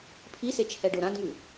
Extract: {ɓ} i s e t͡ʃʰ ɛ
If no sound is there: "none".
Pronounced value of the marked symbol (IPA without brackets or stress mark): pʰ